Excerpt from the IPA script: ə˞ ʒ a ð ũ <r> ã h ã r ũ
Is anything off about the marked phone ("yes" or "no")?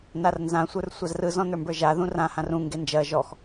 no